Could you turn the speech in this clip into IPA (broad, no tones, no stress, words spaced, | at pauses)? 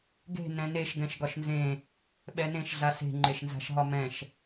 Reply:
ɡe̤ nɛ̃neʃ ɡɛ̃ʃɡɒʃnzẽ | ɓɛnẽʃ ɮase̤ ŋ͡ǃeʃnza̤ʃɦɒmɛ̃ʃ